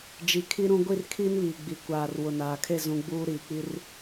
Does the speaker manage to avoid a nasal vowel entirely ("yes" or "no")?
no